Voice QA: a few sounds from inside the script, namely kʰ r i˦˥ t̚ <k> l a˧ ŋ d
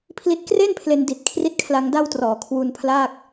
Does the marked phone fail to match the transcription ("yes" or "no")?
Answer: yes